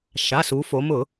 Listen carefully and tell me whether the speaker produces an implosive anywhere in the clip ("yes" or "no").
no